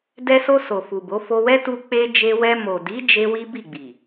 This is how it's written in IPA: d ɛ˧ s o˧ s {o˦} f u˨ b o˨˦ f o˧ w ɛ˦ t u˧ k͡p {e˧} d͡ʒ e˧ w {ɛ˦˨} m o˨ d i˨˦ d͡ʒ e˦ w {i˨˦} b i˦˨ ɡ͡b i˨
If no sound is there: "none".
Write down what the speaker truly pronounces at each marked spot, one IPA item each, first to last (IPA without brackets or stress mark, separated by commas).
o˨, e˦, ɛ˧, i˦